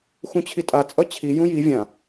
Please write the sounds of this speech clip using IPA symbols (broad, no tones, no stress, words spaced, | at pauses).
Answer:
xũt͡ɕʰitʼa t͡sʼʌt͡ɕʰi jũji vʲã